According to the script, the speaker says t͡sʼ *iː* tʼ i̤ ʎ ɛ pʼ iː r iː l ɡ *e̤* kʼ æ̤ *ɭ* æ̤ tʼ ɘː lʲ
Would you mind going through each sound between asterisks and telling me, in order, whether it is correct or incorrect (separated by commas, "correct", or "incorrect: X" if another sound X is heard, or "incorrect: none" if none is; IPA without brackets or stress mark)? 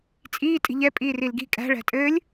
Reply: correct, incorrect: i̤, correct